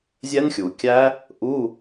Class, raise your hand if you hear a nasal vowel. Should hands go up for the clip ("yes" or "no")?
no